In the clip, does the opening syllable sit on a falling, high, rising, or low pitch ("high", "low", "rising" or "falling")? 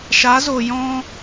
rising